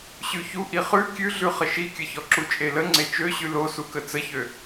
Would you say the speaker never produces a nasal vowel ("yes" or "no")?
yes